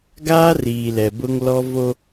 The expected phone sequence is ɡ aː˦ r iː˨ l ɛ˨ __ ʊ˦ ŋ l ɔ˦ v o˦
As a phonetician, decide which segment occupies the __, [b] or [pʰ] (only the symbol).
b